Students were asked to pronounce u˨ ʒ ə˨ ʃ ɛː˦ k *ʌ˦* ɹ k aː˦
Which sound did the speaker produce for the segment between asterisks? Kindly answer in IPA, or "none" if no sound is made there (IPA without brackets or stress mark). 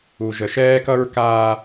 ʌ˦